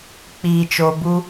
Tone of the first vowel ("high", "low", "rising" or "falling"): low